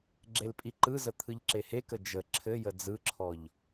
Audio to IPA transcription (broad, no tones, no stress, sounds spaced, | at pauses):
ɡ͡ǁ e l pʼ i ǃ ɯ z ə t̪ʰ ɯ ʎ ǁ e h e k ə d͡ʒ ə ǁʰ ɘ j ə d͡z ɯ ǁʰ ɔ ʎ